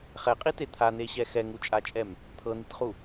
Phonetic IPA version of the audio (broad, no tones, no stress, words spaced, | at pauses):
χɛqʼite t̪ʰan̪eɕɛ xɛŋut͡ʃʼat͡ʃʼɛm | t̪ʰɤnitχu